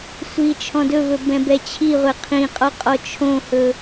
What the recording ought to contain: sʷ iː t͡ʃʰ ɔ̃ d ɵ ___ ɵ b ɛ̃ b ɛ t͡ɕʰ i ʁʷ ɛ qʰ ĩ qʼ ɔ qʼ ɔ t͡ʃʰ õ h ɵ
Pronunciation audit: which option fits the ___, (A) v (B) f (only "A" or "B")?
A